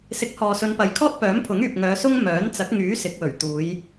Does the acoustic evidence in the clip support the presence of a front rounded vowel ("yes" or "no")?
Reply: yes